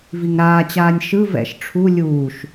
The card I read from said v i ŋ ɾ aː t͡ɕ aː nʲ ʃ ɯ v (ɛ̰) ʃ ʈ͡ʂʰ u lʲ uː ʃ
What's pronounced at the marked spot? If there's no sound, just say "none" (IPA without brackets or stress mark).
ɛ̰